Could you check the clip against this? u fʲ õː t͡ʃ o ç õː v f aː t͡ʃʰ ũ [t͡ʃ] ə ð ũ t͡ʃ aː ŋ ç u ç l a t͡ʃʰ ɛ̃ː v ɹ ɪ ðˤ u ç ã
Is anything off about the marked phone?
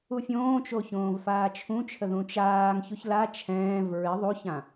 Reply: yes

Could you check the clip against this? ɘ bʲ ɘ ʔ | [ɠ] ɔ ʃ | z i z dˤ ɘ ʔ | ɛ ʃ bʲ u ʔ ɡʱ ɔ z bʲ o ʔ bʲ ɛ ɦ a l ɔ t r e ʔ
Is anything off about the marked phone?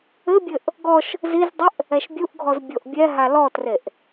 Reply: yes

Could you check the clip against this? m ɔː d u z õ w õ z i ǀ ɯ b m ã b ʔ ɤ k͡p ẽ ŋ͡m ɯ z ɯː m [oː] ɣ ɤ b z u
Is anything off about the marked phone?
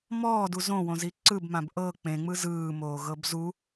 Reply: no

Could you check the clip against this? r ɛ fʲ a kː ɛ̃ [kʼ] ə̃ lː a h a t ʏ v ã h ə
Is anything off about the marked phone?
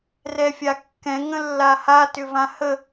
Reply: yes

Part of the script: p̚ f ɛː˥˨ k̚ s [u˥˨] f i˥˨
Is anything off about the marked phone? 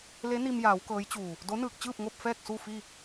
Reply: no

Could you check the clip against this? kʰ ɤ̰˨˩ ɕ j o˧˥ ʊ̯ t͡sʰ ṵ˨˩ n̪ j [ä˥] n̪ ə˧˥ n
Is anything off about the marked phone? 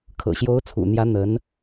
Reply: yes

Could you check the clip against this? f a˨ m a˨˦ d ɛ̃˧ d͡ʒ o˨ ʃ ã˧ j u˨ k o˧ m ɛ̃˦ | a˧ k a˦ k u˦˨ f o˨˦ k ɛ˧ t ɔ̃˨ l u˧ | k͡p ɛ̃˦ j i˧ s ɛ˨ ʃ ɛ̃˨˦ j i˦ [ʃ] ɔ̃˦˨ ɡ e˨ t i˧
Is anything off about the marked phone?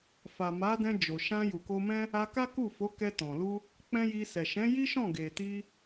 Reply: no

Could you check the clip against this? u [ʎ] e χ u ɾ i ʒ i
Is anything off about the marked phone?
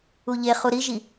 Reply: no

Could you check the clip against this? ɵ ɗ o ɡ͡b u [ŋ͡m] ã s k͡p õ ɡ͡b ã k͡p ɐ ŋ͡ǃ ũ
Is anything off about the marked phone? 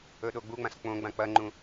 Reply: no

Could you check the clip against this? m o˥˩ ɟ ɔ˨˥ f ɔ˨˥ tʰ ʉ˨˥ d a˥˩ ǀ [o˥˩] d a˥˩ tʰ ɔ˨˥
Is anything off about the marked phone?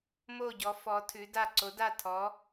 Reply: yes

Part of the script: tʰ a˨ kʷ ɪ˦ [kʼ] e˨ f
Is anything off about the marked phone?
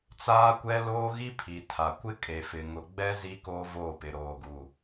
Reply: no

